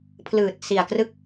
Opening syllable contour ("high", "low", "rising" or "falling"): low